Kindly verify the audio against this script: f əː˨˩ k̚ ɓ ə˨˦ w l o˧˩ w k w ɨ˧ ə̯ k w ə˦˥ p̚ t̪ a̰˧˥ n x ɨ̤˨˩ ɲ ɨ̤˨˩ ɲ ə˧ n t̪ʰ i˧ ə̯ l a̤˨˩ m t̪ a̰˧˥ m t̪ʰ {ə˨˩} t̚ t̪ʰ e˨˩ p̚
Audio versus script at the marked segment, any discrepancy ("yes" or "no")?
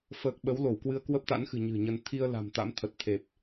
no